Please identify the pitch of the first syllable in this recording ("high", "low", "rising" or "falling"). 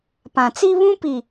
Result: low